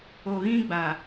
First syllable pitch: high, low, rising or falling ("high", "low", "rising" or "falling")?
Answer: low